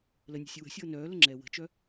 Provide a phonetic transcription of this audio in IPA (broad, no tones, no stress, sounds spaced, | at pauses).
l ə nʲ ɛ̤ sʲ ə w ə̤ sʲ ɤː n œː l ə ŋ͡ǁ ɛː w ə̤ t͡ʃ œ